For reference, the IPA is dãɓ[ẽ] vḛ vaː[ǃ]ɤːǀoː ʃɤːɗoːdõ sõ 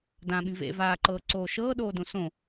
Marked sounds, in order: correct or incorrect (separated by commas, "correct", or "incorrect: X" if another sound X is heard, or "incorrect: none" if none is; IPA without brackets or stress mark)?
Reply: incorrect: ĩ, correct